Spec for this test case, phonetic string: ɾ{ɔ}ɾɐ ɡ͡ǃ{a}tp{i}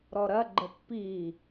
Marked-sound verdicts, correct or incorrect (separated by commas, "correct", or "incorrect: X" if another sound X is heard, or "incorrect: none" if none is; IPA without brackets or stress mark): correct, incorrect: ə, correct